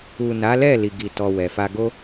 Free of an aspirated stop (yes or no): yes